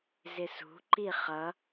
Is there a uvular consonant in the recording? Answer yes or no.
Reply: yes